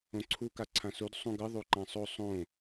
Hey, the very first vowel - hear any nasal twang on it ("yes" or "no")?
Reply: yes